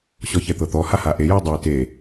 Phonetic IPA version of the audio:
ɕ ɔ ç ɛ t̪ ɤ t̪ ɔ h a h a ʔ e j i dˤ o ɪ̯ t e

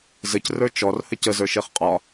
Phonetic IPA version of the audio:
z ɘ c r ə˞ t͡ʃ ɔ r h ɘ c ə z ə˞ ʃ e χ qʼ ɒ

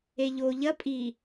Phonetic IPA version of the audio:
e ʎ o ʎ ɐ pʼ i

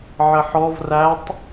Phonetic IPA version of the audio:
ʕ ə ħ ɔ v r æ tˤ

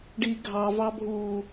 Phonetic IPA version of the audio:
ɖ i ɡʱ ɑ v ɑ bʱ uː

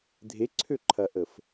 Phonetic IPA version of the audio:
dʱ e ǀʰ ø ǃʰ ɐ ʔ ə f

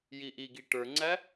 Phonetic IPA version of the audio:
j i ʔ i ɡ i ʈ ə˞ ŋ͡ǀ æ

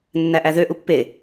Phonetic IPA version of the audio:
nː æ ʔ æ ð ø ʔ u pː e

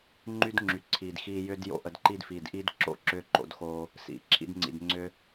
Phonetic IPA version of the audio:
ŋ͡ǃ y˦ d ŋ͡ǁ y˨ ǀʰ i˨ d x iː˧ j ʏ˦ d j o̰˦ ʔ ə˧ d ǃ i˦ d f iː˨ d ʔ i˦ d ǁ o̰˦˨ ǁ ʏː˦ ǃ o̰˧ d x oː˧ | s ḭ˨ ǁʰ ḭ˧ d ŋ͡ǀ ḭ˨ d ŋ͡ǀ ʏː˧

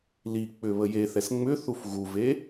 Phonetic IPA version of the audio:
l i k͡p ʏ β ə j e θ ɛ s ŋ͡m ʏ θ u f ɣ u v e

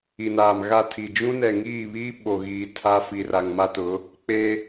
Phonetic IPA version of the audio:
i˨ n aː˨ m ɣ a˦˨ tʰ iː˨ d͡ʒ ũ˦ n ɛ˨ ŋ iː˦˨ β iː˦ ɓ o˨ ɣ iː˨ tʰ aː˦ f i˨ r a˨ ŋ m a˦ t ʊ˨˦ | k͡p eː˦

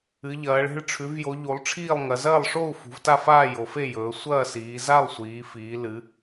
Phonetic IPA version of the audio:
ɨ˩˧ ʎ ɐː˩˧ ɭ e̤˥˨ ɭ ʈ͡ʂʰ ʉ˩˧ v j o˩˧ ʎ u˩˧ lˠ ʈ͡ʂʰ iː˥˨ lˠ ŋ ɐ˩˧ z ɐː˥˨ lˠ ʂ o˥˨ u̯ f ṳ˩˧ v t a˥˨ f aː˥˨ j o˩˧ f e˥˨ j ɵː˩˧ sʷ ɐː˥˨ s iː˩˧ z a˥˨ lˠ sʷ iː˩˧ f iː˩˧ l ɨ˩˧

